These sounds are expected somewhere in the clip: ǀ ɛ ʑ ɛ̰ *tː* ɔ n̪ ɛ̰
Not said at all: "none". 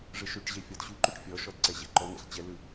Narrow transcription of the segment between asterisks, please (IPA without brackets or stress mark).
ǃ